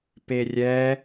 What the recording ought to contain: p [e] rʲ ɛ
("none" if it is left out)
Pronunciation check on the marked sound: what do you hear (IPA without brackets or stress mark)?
e